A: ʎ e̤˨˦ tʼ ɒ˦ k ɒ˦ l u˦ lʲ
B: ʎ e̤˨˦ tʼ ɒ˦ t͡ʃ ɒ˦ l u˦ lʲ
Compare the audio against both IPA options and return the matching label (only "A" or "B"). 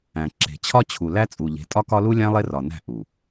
A